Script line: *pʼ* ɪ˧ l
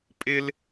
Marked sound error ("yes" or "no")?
no